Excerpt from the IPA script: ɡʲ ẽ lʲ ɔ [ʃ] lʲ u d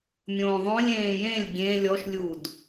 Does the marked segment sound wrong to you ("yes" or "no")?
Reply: no